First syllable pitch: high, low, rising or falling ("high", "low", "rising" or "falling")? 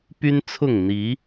high